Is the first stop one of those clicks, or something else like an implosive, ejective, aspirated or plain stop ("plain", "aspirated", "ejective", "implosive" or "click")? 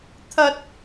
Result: aspirated